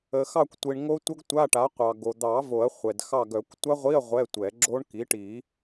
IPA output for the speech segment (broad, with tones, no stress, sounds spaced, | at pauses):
ə˩ x ɑ˦˨ kʷ tʷ i˩ ɳ ŋ o˦˥ tʷ ə˦˥ ɡ tʷ a˧˥˧ ʈ a˩˥ qʷ ɑ˩ ɡ o˩ d̪ ɑ˨˩˦ v o˨˩˦ ɐ̯ χʷ ɛ˩ d x ɑ˦˨ ɡ œ˨˩˦ kʷ tʷ a˦˥ ʁʷ i˧˥˧ ɐ̯ ʁʷ ɛ˧˥˧ tʷ ɛ˨˩˦ ɡ͡ǁ o˦˥ ɳ k i˩˥ ʈ i˨˩˦